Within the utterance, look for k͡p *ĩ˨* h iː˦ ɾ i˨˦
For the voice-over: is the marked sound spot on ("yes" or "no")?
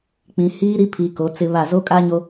yes